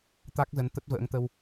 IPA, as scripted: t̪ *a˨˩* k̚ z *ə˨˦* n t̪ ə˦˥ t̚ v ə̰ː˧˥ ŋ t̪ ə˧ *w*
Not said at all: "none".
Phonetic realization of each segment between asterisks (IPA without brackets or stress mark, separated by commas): a˦˥, ə˨˦, w